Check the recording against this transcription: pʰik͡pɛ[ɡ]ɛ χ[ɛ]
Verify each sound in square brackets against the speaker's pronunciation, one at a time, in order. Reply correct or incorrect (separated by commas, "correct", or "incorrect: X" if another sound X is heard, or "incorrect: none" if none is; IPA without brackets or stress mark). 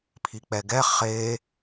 correct, incorrect: e